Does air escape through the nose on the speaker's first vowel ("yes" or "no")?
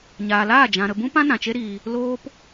no